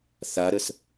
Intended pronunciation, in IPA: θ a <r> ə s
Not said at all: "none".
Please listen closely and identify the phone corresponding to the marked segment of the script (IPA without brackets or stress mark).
ɾ